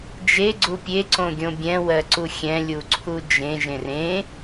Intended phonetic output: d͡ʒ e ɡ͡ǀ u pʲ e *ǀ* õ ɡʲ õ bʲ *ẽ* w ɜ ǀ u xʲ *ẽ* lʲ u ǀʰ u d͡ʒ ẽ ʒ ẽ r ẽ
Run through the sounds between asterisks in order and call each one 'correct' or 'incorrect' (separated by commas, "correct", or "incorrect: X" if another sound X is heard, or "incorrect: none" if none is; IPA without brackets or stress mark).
correct, incorrect: ɛ̃, incorrect: ɛ̃